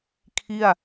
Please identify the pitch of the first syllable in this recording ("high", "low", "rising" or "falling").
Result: falling